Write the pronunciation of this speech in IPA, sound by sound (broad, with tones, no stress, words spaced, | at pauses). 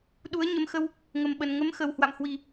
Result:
ɗu˨˦ə̯ɲə˧mxə˧w | ŋə˨˩mɓə˨˩n ŋə˨˦mxə˨˩whwa̰˧˨mhwi˨˩